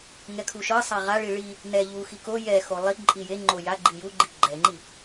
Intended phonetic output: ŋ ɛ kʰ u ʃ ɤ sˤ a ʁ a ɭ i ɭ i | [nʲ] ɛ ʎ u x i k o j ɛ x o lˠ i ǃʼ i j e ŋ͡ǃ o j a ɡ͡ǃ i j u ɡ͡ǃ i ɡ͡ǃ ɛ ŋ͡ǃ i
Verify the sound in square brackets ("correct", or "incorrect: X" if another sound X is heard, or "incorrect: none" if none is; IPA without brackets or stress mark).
incorrect: n